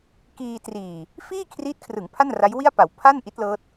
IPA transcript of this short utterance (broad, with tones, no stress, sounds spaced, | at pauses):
k iː˧ t r iː˨˩ | f iː˥˩ kʰ r iː˦˥ t̚ kʰ r ɯ˩˦ ŋ pʰ a˥˩ n r a˦˥ j w i˥˩ a̯ p a˩˦ w pʰ a˥˩ n ʔ i˦˥ t̚ l ɤː˦˥ t̚